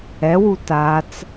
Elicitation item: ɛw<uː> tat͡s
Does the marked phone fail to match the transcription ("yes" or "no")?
yes